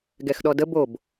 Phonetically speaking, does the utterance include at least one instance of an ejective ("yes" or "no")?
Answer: no